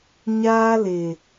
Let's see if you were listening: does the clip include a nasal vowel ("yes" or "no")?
no